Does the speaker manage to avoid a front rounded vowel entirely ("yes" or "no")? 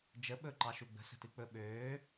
no